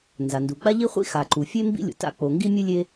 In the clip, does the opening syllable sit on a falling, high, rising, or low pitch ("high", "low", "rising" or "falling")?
low